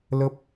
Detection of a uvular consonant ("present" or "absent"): absent